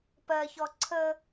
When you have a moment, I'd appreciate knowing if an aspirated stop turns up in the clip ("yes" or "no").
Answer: yes